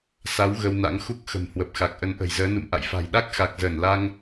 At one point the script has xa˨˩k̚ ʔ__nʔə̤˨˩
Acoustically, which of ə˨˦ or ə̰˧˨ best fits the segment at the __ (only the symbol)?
ə˨˦